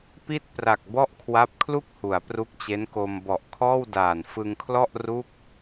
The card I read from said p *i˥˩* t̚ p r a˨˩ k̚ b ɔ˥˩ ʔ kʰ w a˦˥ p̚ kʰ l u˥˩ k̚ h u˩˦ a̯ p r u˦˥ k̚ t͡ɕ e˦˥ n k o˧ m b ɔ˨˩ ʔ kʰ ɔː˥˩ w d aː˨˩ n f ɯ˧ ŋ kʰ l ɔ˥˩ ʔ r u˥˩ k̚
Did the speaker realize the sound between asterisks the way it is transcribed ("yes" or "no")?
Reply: yes